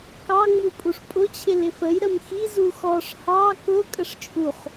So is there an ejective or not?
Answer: yes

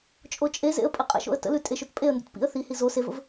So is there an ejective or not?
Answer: yes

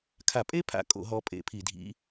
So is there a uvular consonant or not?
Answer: no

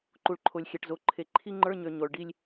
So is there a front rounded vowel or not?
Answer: yes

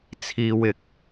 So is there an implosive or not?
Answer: no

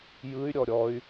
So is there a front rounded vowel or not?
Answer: yes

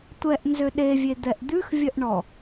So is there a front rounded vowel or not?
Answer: yes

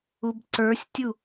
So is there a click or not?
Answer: yes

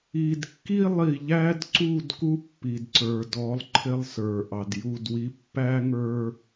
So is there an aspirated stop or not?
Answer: yes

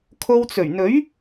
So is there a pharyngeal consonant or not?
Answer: no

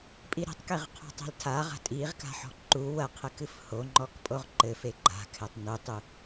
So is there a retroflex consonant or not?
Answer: no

